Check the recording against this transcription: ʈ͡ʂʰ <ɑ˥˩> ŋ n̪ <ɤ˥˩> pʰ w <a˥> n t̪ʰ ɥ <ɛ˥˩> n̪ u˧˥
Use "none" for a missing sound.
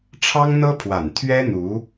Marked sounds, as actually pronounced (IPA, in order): ɑ˥, ɤ˥, a˨˩, ɛ˥

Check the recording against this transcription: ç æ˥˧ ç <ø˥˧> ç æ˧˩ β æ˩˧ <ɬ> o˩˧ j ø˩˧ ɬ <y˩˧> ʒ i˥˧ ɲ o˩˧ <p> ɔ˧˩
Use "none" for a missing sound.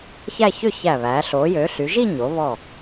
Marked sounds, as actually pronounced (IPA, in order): ø˥˧, ɬ, y˩˧, β

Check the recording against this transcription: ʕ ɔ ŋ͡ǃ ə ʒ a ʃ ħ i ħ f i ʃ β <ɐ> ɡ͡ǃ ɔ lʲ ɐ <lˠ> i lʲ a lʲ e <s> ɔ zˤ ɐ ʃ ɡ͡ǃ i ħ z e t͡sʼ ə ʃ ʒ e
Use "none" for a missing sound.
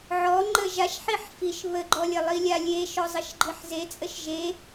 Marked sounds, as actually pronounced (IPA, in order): ə, lˠ, ʃ

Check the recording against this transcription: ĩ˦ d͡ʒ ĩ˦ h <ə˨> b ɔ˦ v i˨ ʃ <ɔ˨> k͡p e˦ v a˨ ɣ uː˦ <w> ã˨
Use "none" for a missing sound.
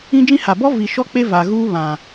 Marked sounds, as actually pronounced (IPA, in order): a˨, ɔ˦, β

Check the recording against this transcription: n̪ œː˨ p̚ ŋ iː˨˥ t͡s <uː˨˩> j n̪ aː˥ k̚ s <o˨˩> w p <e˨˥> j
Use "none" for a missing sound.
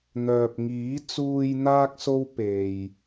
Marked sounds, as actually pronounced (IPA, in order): uː˨, o˥, e˨

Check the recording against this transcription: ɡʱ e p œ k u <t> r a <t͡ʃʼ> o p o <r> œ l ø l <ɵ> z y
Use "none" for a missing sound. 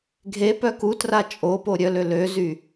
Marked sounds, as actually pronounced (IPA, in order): t, t͡ʃʼ, ɾʲ, ø

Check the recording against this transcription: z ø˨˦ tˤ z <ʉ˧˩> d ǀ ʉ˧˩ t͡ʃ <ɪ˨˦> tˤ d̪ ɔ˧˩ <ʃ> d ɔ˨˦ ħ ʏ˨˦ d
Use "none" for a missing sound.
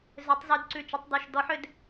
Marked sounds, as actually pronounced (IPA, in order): ʉ˨˦, ʏ˨˦, ʃ

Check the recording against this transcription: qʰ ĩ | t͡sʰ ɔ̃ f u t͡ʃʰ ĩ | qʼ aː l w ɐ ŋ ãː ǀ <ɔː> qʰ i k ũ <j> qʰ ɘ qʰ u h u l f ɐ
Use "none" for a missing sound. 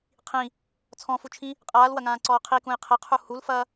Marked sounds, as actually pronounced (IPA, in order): ɔː, j

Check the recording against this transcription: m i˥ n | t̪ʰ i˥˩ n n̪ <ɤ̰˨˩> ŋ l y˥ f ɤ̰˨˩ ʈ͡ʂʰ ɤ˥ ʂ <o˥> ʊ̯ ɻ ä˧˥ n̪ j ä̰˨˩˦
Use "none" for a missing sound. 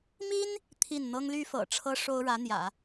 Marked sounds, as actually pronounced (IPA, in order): ɤ˥, o˥

